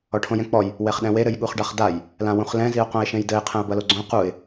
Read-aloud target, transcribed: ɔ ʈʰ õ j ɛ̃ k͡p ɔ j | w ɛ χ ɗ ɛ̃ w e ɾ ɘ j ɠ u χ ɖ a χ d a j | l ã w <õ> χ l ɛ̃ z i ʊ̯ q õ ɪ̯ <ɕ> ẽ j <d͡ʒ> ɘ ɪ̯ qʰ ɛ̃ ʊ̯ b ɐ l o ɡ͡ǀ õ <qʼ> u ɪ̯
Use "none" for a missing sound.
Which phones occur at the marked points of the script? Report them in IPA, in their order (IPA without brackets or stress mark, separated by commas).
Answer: ũ, ʃ, d, q